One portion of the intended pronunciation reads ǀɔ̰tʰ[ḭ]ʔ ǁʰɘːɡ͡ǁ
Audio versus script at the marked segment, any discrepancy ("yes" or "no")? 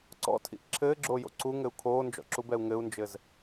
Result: no